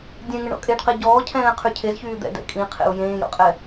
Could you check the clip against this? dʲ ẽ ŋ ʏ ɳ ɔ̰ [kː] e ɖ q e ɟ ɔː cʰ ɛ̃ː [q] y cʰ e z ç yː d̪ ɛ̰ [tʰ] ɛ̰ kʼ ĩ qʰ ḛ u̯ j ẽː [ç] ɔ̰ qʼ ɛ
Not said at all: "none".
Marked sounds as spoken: kʼ, qʰ, d, j

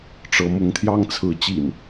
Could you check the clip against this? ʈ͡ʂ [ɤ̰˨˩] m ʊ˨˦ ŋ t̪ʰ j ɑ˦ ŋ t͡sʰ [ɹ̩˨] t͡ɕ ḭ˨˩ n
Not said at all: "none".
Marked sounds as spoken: ɤ˨˦, ɹ̩˨˦

